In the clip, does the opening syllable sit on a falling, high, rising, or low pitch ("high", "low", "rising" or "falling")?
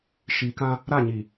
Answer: low